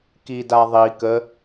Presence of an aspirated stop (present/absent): absent